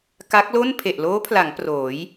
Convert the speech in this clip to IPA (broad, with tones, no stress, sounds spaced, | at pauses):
k a˦˥ k̚ l o˥˩ n pʰ e˨˩ ʔ l oː˦˥ pʰ l a˩˦ ŋ p r oː˩˦ j